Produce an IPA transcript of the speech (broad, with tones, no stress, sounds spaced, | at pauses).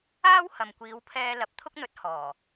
aː˥ w h ɐ˨ m kʷ iː˨˧ w pʰ ɛː˧ l ɐ˨˥ p̚ t̪ʰ ʊ˥ k̚ n̪ ɵ˨˥ t̚ h ɔː˨˩